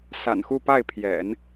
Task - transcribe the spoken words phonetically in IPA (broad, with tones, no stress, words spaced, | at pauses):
sa̰˨˩nxu˥˧pa˥˩ɪ̯pʰjɛ̰˨˩˦n